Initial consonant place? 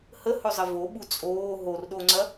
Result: glottal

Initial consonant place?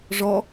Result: retroflex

